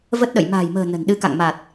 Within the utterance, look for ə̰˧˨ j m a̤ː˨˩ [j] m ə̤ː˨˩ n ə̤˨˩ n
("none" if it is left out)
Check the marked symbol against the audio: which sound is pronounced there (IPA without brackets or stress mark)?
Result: j